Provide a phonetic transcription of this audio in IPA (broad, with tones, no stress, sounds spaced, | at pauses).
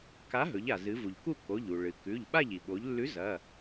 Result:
k a˨˥ ɦ ɵ˩˧ ʎ a˩ z ɨ˩˧ v u˩ ʎ k u˥˨ k o˩˧˩ ʎ u˩ ɭ ɨ˩ k ʉ˩˧˩ ʎ ɓ a˥˨ ʎ i˩ ɓ o˩˧ ʎ lː ʉ˨˥ z ɐ˩˧˩